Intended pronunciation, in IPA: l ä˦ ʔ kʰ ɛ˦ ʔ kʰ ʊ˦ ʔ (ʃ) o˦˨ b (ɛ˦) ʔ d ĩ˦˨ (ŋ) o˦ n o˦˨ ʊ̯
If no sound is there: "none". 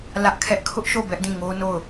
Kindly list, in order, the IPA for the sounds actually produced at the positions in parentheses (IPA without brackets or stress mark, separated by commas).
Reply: ʃ, ɛ˦, ŋ